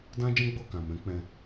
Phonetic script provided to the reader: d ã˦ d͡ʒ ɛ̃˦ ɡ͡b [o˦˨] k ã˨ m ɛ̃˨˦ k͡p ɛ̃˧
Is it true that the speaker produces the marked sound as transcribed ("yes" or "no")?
yes